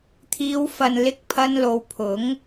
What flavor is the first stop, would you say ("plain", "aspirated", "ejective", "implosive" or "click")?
aspirated